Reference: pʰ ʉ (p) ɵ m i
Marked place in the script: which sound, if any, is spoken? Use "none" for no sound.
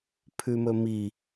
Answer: m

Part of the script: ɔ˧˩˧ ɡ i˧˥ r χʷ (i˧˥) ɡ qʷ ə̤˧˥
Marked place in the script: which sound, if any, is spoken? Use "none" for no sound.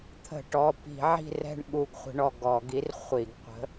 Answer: i˧˩˧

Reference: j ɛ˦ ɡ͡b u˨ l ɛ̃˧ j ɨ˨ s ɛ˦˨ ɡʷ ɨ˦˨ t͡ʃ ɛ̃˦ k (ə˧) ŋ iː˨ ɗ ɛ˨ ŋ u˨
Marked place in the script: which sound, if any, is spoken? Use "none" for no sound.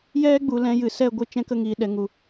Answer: ə˧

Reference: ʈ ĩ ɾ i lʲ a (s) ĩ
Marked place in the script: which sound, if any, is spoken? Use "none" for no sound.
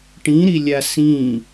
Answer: s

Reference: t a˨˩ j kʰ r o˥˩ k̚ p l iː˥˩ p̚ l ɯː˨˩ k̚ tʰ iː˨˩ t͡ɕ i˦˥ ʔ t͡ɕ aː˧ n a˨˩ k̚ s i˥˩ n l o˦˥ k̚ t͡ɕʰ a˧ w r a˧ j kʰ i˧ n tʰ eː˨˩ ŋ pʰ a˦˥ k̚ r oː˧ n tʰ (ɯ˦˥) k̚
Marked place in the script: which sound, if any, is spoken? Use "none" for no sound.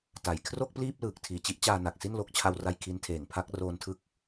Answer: ɯ˦˥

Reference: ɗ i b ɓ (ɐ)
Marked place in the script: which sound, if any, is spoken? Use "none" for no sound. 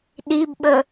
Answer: ə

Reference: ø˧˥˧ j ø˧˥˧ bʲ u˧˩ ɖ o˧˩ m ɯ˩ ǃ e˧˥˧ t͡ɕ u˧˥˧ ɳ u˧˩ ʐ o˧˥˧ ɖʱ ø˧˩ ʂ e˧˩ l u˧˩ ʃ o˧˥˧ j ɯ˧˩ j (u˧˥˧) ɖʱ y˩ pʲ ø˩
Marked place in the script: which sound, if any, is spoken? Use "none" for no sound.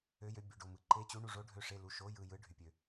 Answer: ɯ˧˥˧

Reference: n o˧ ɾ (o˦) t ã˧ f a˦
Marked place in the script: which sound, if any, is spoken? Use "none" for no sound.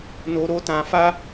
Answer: o˦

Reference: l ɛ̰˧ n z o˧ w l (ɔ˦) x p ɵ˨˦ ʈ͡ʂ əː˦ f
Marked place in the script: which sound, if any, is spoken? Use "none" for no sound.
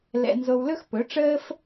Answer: ɵ˦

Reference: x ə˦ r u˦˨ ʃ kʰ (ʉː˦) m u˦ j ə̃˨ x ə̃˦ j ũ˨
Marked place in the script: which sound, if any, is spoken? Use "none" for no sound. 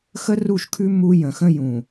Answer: ʉ˦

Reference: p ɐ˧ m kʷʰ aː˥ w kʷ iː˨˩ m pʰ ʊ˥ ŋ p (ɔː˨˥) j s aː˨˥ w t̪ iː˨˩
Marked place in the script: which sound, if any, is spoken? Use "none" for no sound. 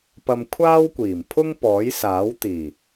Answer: ɔː˨˥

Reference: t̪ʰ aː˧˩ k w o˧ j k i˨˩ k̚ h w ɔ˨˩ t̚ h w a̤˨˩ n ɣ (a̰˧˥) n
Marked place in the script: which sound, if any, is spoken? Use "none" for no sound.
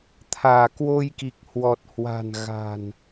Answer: a̤˨˩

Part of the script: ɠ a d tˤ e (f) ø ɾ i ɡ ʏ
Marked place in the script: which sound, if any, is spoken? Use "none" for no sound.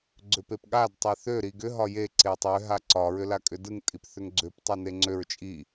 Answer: θ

